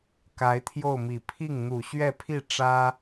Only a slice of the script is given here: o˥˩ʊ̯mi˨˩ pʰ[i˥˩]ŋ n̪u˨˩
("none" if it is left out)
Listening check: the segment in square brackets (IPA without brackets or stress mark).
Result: i˥˩